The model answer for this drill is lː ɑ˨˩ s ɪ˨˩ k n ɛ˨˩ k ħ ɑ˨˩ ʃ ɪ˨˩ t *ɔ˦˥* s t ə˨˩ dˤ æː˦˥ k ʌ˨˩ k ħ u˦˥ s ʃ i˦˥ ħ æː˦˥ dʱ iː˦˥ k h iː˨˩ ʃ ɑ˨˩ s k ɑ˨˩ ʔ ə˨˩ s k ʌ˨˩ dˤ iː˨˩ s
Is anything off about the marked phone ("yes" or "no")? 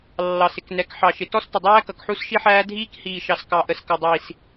no